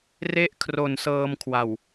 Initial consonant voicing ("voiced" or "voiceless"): voiced